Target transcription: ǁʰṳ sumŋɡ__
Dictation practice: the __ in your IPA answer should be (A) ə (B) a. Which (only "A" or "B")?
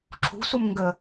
A